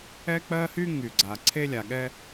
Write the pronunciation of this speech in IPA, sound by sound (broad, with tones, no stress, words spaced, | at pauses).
ɛ˥k͡pɜ˥hy˥ ŋy˩ɡ͡ǀa˩ ǀʰe˥lʲa˩ɠɛ˥